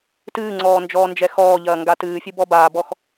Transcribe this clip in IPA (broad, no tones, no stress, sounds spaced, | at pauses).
t ɨː ŋ͡ǀ ɔː n d͡ʒ ɔː n d͡ʒ ɛ x ɔː ʎ ɐː ŋ ɡ a t ɨː fʲ ɨ b ɔ b aː b ɔ x